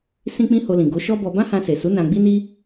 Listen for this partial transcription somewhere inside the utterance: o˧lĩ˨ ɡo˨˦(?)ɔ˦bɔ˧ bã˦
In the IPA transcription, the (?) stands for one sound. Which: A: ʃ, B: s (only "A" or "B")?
A